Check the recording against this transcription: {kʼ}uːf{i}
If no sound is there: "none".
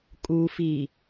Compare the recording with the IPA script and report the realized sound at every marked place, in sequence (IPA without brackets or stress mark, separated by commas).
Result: kʼ, iː